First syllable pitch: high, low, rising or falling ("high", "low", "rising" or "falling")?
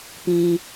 low